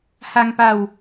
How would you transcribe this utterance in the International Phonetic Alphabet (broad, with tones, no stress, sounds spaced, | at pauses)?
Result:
h a˧ ŋ p a˧ w